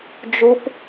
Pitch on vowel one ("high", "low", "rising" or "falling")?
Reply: high